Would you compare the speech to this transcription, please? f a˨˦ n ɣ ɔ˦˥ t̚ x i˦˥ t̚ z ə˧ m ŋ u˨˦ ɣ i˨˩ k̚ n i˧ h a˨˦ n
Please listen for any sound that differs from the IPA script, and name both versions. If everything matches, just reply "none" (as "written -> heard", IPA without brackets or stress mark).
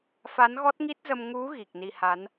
x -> ŋ